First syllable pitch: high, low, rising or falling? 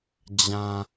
low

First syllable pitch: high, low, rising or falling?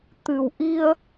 low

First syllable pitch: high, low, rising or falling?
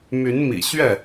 rising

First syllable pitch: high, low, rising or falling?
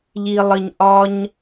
low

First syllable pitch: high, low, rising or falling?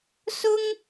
high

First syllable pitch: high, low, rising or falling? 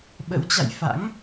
rising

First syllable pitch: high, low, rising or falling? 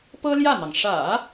high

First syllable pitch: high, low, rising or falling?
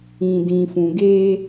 low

